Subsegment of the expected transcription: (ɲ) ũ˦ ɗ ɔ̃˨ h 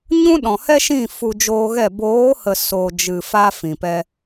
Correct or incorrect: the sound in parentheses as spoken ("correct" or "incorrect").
correct